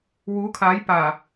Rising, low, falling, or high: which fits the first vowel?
rising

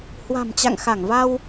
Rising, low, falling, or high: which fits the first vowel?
low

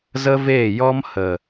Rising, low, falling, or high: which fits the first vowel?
high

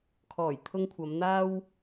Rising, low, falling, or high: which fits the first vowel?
low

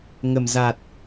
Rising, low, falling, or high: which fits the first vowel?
low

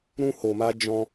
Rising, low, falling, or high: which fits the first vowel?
high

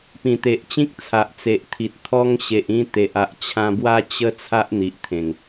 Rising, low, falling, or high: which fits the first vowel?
low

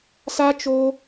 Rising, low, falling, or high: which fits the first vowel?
high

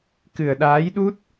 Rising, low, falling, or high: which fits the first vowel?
low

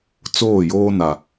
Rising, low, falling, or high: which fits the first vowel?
falling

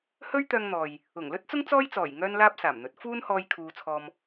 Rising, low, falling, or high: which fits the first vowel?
high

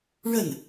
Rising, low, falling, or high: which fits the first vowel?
falling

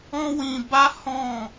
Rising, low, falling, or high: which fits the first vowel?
high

